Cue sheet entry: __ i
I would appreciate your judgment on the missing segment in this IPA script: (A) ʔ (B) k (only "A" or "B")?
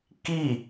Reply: B